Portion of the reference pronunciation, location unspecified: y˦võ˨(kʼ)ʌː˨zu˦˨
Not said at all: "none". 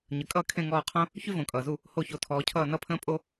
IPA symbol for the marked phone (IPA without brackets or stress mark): kʼ